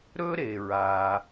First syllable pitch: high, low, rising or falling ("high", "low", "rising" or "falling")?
high